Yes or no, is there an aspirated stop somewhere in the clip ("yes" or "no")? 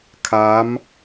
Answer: yes